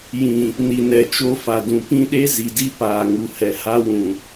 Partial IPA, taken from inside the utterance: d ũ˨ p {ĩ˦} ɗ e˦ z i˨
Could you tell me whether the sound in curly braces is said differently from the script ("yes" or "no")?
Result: no